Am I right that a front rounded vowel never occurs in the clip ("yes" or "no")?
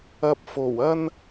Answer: yes